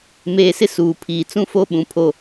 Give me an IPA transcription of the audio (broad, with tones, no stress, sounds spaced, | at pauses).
m eː˨ s ɪ˦ s uː˨ pʰ iː˨ t͡s ũ˦ f o˦ ɓ ũ˨ pʰ o˦